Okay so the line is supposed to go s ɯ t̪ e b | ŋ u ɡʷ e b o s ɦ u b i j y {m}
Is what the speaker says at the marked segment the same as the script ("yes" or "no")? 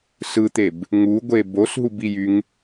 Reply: no